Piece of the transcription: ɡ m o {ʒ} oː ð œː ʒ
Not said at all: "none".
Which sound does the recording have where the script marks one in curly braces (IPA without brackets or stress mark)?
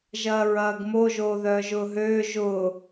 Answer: ʒ